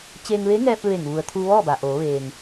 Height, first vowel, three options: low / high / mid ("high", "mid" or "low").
mid